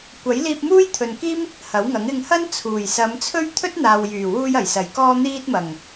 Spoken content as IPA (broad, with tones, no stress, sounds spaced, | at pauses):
kʷ ɐ˨˥ j l iː˧ p̚ m uː˥ j t̪ʰ ɵ˨ n k iː˥ m | h ɐ˨˥ w ŋ ɐ˨˥ ŋ ɪ˨ ŋ h ɐ˥ n t͡sʰ uː˨˩ j s ɐ˨˧ m t͡sʰ ɵ˥ ɥ t̪ʰ ɵ˥ t̚ n̪ aː˨ w j yː˨˩ w uː˧ j ɐ˨˩ j s ɐ˨˩ j k ɔː˧ n̪ iː˧ t̚ m ɐ˨˩ ŋ